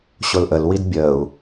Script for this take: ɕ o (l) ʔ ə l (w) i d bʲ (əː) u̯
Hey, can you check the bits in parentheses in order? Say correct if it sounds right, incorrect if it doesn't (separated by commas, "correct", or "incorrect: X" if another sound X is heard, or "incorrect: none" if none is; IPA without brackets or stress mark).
correct, correct, correct